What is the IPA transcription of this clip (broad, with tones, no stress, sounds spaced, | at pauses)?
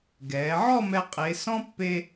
ɡ ɛː˩˧ ʕ ɔ˥˧ m ɛ˧ qʼ e˩˧ s ɔ̃˥ pː e˧